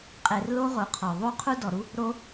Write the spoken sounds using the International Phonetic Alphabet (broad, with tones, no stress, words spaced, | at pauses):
qʼe˧rlo˦ ʁo˨˦qʰɔ˨ ðˤu˦qʰu˦dɔ˨ɾu˦ | ɾo˧